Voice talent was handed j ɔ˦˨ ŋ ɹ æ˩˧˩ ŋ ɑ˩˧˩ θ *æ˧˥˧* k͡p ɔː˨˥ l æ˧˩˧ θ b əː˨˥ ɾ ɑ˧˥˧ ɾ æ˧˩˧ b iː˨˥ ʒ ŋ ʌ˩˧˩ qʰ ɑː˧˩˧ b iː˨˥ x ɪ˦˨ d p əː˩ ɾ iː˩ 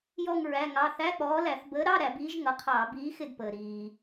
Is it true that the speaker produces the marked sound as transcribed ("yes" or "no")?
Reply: yes